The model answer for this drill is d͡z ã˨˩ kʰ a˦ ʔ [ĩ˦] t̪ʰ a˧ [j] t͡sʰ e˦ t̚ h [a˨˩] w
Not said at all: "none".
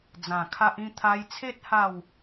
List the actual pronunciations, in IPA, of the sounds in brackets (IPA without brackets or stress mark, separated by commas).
ĩ˥˧, j, a˥˧